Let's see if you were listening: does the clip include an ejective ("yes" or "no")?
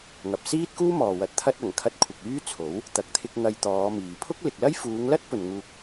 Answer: no